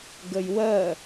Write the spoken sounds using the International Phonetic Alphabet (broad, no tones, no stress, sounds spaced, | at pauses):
ɡ ə j w ɜ